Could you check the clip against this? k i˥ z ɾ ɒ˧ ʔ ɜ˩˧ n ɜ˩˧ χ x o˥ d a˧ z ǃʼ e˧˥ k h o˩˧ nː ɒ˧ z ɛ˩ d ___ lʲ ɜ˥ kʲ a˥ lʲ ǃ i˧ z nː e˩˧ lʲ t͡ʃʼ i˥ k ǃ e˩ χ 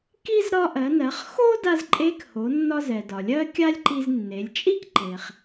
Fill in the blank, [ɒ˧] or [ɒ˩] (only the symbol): ɒ˩